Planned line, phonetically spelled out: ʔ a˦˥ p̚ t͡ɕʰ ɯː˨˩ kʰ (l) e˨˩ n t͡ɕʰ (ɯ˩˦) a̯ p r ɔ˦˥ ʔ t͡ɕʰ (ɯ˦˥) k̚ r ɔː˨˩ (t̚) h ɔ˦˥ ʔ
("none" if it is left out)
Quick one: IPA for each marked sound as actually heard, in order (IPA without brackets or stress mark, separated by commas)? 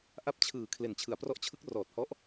l, ɯ˩˦, ɯ˦˥, t̚